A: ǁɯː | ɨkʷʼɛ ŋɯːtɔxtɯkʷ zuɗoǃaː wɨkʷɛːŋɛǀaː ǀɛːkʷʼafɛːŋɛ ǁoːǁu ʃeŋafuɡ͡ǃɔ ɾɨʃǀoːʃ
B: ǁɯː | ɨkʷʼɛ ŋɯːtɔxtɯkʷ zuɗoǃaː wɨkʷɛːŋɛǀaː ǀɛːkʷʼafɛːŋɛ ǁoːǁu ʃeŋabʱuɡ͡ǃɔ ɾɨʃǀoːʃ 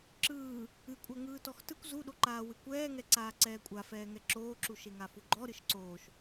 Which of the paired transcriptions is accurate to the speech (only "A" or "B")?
A